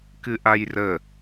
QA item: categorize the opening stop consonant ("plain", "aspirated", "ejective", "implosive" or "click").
plain